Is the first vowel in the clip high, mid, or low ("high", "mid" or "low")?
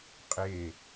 mid